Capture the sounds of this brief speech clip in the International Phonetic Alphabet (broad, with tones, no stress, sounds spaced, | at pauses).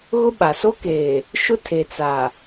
ɣ ʊ˦ ɓ a˨ s o˦ k eː˨ | ʃ ʊ˦ tʰ e˨ t͡s a˨